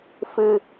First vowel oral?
yes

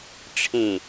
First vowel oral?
no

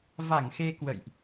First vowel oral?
yes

